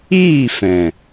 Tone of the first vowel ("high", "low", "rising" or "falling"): falling